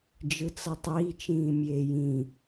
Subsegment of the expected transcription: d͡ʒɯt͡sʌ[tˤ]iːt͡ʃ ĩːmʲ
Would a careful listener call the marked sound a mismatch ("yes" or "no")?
no